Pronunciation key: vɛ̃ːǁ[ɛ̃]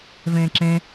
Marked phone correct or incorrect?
correct